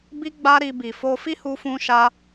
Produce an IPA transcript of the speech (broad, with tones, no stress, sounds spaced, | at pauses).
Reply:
b i˦ ɡ͡b a˦ ɾ i˧ b i˨ f o˧ f i˦ h u˧ f ũ˦ ʃ a˦